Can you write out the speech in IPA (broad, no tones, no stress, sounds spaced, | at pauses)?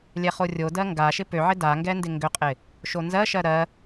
lʲ ɛ χ o rʲ o d ɜ ŋ ɡ a ʃ ɪ p ø ʕ ɪ d a ŋ ɡ ɛ n d ɪ ŋ ɡ ø qʼ ɪ | ʃ o n z ɜ ʃ ɜ ɾ ɜ